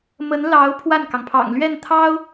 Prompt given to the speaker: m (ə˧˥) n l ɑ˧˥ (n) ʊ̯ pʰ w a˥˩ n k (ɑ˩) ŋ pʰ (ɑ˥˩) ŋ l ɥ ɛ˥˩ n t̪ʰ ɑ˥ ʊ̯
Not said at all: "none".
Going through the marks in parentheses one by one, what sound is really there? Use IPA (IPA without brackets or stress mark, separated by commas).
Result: ə˧˥, none, ɑ˩, ɑ̰˨˩